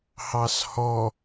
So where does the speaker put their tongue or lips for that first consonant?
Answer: throat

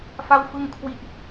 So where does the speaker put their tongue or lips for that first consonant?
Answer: lips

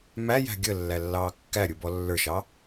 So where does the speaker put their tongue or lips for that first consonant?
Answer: lips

